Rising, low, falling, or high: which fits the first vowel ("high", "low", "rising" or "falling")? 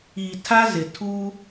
low